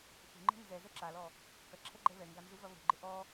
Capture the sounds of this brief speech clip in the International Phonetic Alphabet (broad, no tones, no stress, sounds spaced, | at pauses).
θ ṳ ŋ͡ǃ e̤ n z ɛ z ɛ ǁ a l ɔ | k ɐ ǁʰ ɛ ɡ͡ǃ ɛ β ɛ ŋ ɡ a n z u v ɐ β o̤ ɡ͡ǃ ɪ ʔ ɔ